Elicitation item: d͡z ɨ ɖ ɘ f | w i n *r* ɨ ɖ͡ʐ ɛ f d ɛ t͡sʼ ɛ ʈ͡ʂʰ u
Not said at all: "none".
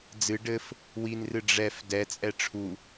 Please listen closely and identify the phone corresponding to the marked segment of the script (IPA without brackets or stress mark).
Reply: r